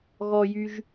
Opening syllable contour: low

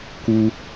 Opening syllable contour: high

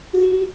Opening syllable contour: high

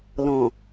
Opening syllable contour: low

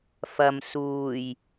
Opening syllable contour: low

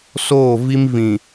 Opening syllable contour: falling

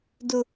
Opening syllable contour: high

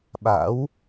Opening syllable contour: rising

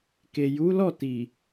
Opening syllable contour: low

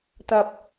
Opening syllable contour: low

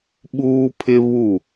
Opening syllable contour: high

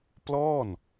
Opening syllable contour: falling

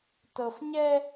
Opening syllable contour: low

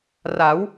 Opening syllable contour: rising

